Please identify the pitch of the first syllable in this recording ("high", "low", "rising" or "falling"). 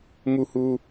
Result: high